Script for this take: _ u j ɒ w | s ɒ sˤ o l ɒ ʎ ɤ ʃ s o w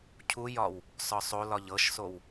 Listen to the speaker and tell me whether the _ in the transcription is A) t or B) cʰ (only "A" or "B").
B